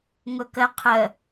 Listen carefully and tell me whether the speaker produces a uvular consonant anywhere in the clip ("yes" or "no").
yes